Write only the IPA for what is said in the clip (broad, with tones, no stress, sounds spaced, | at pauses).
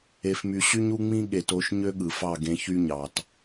e˧ f m y˧ ɕ y˦ ɲ u˦ ŋ͡m ĩ˦ ɠ e˨ t o˨˦ ʃ ɲ ø˦ ɠ ɯ˨ f ɑ˦˨ ɡ ẽ˧ ç y˦ ɲ ɑ˨ t